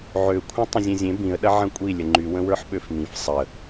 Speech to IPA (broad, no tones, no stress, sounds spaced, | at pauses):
ʕ ø kʷʰ ɐ̃ tˤ ə̃ zʲ ẽ zʲ ẽ b ĩ ə̯ ɗ ɐ ʕ ɐ̃ kʷʼ i lʲ ə ŋ͡ǃ y w ə̃ w ə˞ ħ ɓ ø f m ĩ f sˤ ə